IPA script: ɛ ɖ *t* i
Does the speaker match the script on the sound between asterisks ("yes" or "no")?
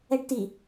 yes